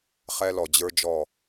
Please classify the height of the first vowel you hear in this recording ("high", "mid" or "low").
mid